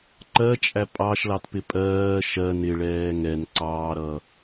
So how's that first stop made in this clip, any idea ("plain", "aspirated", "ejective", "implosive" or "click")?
click